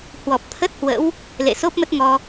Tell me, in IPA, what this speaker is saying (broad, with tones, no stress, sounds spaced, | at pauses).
h w ɔ˨˩ p̚ t̪ʰ ə˦˥ t̚ h w ə̰˧˥ w | l ḛ˧˨ s o˦˥ p̚ m ə˦˥ t̚ ŋ ɔ˧